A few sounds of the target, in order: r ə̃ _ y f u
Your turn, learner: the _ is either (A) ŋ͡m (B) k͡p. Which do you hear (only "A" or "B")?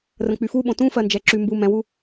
B